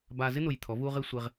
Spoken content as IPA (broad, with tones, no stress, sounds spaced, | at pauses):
b aː˧ z ɪ˥ n̪ ʊ˧˩ j t̪ʰ ɔ˩˧ v uː˧ ʁ ɪː˧ sʷ e˧ ʁ